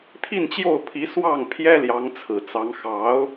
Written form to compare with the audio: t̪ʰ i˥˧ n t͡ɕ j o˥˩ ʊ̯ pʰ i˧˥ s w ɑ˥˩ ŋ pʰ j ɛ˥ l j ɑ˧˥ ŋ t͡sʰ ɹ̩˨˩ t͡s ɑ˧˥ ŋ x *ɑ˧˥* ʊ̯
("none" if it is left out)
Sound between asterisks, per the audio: ɑ˧˥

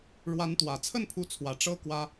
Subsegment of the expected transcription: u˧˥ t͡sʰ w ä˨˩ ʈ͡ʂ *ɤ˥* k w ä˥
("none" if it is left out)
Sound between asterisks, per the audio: ɤ˥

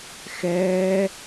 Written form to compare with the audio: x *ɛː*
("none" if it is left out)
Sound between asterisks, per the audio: ɛː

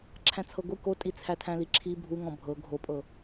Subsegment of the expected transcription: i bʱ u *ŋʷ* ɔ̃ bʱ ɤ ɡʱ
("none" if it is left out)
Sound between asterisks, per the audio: ŋ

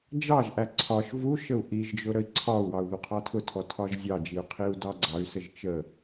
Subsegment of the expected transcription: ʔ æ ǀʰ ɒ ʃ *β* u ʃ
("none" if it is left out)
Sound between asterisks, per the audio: v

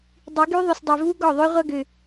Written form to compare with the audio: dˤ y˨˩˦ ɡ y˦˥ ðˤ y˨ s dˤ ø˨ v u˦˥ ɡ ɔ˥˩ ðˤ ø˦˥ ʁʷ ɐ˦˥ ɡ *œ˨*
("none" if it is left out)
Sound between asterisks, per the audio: ø˨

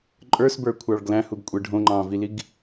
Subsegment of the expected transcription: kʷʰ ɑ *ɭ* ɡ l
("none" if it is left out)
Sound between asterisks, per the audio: ɭ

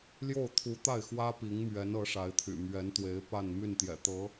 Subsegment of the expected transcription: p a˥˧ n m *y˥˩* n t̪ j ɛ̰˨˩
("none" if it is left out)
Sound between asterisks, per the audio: y˥˩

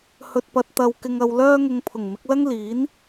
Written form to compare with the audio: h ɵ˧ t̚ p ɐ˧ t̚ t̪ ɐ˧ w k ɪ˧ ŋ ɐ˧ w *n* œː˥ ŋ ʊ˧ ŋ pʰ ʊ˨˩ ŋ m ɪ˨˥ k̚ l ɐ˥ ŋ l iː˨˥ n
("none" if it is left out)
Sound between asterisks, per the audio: l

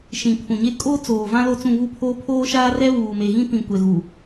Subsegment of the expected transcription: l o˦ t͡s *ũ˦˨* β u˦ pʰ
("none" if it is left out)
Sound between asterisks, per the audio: ũ˦˨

